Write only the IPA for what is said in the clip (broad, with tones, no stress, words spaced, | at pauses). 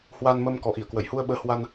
hwa˧n mə˧m kɔ˨˩ʔi˧˩ə̯kwə˧˩jhu˧ə̯ ɓəː˨˦ hwa˧n